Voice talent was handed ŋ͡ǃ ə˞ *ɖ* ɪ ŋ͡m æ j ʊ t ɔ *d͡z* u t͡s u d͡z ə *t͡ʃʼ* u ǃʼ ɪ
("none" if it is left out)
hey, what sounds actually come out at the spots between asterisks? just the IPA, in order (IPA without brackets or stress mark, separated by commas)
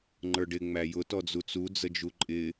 ɖ, d͡z, d͡ʒ